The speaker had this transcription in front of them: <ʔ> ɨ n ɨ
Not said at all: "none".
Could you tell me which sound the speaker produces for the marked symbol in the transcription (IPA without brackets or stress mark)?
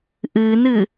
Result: ʔ